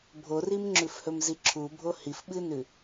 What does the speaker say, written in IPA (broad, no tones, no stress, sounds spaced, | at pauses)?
bʱ o r i m ŋ͡ǁ ʉ f h ɵ m z i ǁʰ u bʱ o h i f ɓ ɨ n ʉ